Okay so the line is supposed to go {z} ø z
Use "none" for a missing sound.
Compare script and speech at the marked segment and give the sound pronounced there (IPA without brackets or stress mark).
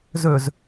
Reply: z